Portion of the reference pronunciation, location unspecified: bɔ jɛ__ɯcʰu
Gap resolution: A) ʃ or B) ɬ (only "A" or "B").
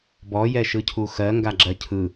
A